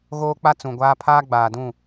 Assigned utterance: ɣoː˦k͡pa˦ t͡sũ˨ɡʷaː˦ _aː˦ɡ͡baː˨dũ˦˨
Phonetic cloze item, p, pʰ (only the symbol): pʰ